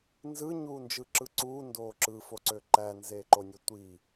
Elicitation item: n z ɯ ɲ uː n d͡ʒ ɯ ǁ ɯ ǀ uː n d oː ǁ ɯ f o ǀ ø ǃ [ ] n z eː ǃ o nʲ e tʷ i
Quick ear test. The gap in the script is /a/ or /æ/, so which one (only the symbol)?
æ